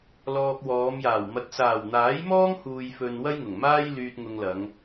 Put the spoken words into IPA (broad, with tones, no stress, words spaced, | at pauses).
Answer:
lɔː˧k̚wɔː˨˧mjaː˨˩w mɐ˨t̚saː˨˩wn̪aː˨˥jmɔː˥ŋ huː˨jfɵ˨n wɐ˥jŋʊ˨˩ŋmaː˥j lyː˧t̚ŋʊ˧ŋlɐ˨˧ŋ